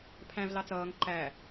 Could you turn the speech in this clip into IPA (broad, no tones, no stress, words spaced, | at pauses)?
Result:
pʰæ̃v lɑt͡sʌːŋ ǃæ